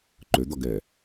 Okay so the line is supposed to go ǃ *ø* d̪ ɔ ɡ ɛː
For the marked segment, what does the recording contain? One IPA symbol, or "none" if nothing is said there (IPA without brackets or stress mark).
ø